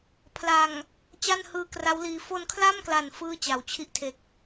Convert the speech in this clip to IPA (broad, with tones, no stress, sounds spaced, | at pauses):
pʰ l a˨˩ ŋ | t͡ɕ a˥˩ n h ɯː˧ k r a˦˥ w l iː˧ f o˧ n kʰ l a˥˩ m k l a˨˩ n f ɯː˥˩ t͡ɕ a˩˦ w t͡ɕʰ i˥˩ ʔ tʰ e˨˩ k̚